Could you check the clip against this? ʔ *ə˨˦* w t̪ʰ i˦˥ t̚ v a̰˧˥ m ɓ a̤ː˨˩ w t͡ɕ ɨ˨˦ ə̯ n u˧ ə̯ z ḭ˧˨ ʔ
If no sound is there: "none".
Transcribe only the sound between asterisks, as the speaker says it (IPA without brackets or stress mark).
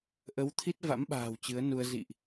ə˨˦